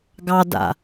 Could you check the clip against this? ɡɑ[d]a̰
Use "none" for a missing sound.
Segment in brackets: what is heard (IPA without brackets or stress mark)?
d